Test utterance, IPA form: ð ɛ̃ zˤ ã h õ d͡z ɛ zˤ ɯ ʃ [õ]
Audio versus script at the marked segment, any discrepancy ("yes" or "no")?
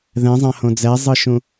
yes